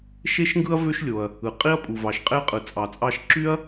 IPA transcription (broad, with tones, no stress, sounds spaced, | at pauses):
ʃ e˥ ʃ ŋ ɡ ɯ˥ ɐ̯ v ø˥ ʃ lʲ o˩ ɐ̯ | ɯ˩ qʼ i˥ ɐ̯ pʼ u˩ v ɑ˩ ʃ qʼ e˥ qʼ ɯ˩ t͡sʼ ɑ˩ t͡sʼ ɑ˧ ʃ ǁ y˥ ɐ̯